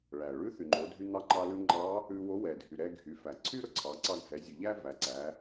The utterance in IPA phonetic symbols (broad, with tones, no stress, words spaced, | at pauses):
ɭæ˩ ɭʉ˧˥ θy˩ŋ͡ǃo˩˧dʱy˧n̪ɑ˧˥ ŋ͡ǃɑ˧lʉ˧ŋ͡ǃɑ˧˥ | ʉ˧wo˧˥ wɛ˩dʱy˩ ɾɛ˧ɡʱy˩˧ fæ˩ǀʰy˥ɾɵ˧˥ǀʰɑ˩˧ ǀɑ˧ɡʱɛ˩˧zʲʉ˩ ʎæ˥ væ˩˧ ǀæ˩˧